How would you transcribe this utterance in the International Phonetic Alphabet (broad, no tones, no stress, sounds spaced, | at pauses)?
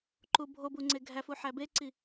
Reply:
ǃ u bʱ o b u ŋ͡ǀ e ɡʱ æ f u ħ æ b e ǀ i